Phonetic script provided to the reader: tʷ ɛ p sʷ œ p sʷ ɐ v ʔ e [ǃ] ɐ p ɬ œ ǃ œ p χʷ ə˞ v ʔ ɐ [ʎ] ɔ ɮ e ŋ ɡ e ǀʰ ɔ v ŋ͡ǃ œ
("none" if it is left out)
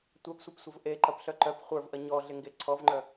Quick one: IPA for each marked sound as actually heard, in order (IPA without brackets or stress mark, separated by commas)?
ǃ, ɲ